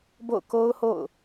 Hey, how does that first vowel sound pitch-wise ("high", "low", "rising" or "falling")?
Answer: falling